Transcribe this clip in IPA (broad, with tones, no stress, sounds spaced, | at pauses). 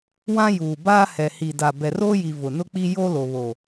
w ã˦ j uː˨ b aː˦ h ɛ˨ h i˨ d a˨ b ɛ˨ r oː˦ j i˨ v ʊ˨ n ʊ˦ k͡p i˦ j o˦ l o˨ β o˨